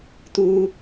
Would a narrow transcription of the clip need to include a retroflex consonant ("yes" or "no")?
no